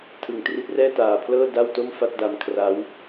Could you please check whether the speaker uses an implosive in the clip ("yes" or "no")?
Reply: no